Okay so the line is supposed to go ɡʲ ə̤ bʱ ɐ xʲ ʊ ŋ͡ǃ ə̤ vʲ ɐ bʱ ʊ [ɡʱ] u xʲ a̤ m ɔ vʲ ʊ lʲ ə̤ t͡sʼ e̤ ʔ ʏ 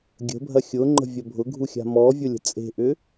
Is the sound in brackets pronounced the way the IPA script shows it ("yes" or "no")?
yes